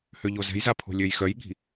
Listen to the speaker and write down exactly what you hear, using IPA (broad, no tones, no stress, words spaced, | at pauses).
høʎozɛ̤jza pʰo̤lʲøjxœjɠi̤